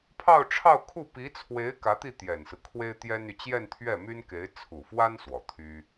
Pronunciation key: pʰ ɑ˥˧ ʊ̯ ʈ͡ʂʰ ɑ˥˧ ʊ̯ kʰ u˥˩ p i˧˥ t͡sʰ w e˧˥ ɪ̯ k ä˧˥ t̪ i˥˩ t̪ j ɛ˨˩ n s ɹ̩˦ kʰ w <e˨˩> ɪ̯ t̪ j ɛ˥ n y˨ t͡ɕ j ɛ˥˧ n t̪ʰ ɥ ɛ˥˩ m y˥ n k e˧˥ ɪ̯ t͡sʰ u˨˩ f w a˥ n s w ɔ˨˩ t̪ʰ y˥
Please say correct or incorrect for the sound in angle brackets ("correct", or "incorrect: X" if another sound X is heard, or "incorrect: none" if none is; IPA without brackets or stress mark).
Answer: incorrect: e˥